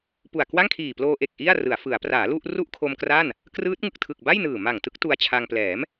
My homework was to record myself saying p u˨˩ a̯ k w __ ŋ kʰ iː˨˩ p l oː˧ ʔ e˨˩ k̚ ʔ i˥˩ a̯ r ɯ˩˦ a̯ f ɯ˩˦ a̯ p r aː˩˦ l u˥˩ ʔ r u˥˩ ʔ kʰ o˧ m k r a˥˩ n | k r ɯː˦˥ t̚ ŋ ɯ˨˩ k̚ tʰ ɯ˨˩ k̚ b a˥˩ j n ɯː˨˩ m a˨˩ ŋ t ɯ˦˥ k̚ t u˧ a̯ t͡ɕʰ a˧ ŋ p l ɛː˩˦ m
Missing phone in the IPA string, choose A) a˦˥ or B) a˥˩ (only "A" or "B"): B